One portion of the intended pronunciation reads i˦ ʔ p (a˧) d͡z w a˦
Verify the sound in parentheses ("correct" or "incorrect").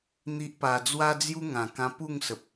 correct